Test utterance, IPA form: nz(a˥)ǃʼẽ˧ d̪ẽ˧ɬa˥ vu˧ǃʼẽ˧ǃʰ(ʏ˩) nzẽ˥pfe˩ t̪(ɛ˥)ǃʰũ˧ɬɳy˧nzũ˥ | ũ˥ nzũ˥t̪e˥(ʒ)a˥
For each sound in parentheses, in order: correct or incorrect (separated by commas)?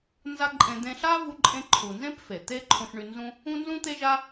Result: correct, incorrect, incorrect, correct